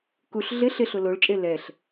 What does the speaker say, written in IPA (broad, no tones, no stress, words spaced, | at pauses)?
kuɬ ɮɪ ɬɪɬʊ loɭt͡ʃʼe lɛɬ